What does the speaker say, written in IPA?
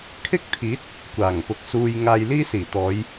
kʰ ɪ˥ k̚ t̪ʰ iː˨˥ t̚ | kʷ aː˨˩ ŋ p ʊ˨˥ k̚ s uː˧ j ŋ aː˧ j l iː˥ s iː˨˩ t̪ ɔː˨˧ j

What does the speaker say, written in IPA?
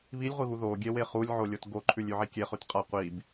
β i lʲ ʁʷ i β u ð o ɡʲ e w e χ u lʲ ʕ o lʲ o t ɡ o ǃʰ ʉ lʲ ʉ ʕ i kʲ e χ ʉ t qʼ a qʷ i b

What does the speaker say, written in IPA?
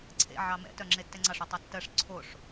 ǀʰ ḛ ʕ ɑ m ɛ̰ t œ ŋ͡ǁ e tː ɛ ŋ͡ǀ ɑ ʂ ʉ tˤ ɛ tː ɜ ʂ ǀʰ o ʂ

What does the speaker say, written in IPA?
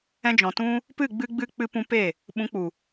ɛ̃˧ d͡ʒ ɔ̃˨ t ũ˦ | p ɨ˦˨ ɡ͡b ɨ˧ ɡ͡b ɨ˧ k͡p ɨ˧ p ũ˧ p e˦˨ | ɓ ũ˨˦ k͡p u˨

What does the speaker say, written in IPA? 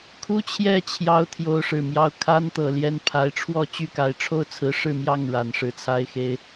kʰ u˥ t͡ɕʰ j ɛ˥˩ t͡ɕʰ j ɑ˧˥ ʊ̯ t̪ʰ j o˧˥ ʊ̯ ʂ ɻ̩˨˩ m j ɑ˥˩ ʊ̯ kʰ a˥ n t̪ ɤ˨˩ l j ɛ˥ n pʰ a˧˥ ɪ̯ ʈ͡ʂʰ w ɔ˥˧ t͡ɕ y˥˩ k a˧˥ ɪ̯ ʈ͡ʂʰ o˥ ʊ̯ t͡sʰ ɹ̩˧˥ ʂ ɻ̩˥˧ m j ɑ˥˩ ŋ ɻ a˨˩ n ʂ ɻ̩˥˩ t͡sʰ a˥ ɪ̯ x e˥ ɪ̯

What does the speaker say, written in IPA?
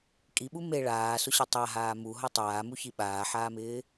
kʼ i ɓ u m e ɭ aː s ʊ ɕ e tˤ a ɦ aː m u ɦ ɔ tˤ aː m u ç i ɓ aː ħ aː m ɪː

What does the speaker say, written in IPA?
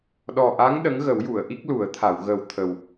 ɗ ɔ˨˩ ʔ a˧˥ ŋ ɗ ə˧˥ ŋ ɣ ə˨˩˦ w j u˨˩˨ ə̯ ʔ i˦˥ k̚ l u˨˩˦ ə̯ t̪ʰ a˨˩˨ w ɣ ə˨˩ w t̪ʰ ə˨˩ w

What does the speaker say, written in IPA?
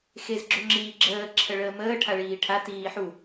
x e z ɡ͡ǁ o ŋ͡ǁ iː ɡ͡ǁ əː ǁʰ ə ɭ əː m əː ʈʰ a ɭ iː ʈʰ a t iː ħ u

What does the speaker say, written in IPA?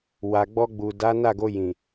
w a˨ ɡ͡b ɔ˧ ɡ͡b u˨ d a˨˦ n a˦˨ ɡ o˧ j ĩ˨

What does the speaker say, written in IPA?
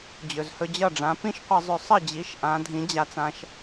d͡ʑ ɵ˩ z h ɵ˧ d͡ʑ ʌ˥˩ ɖ͡ʐ ã˩˥ p ĩ˥ ʃ qʷ ʌ˧ zˤ ɵ˧ sˤ ə˥˩ d͡ʑ i˩˥ ʃ ʔ ã˩˥ dʱ ĩ˩˥ d͡ʑ a˧ t͡s ã˧ ʃ

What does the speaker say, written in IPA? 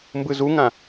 m b ɯ z u ŋ ã

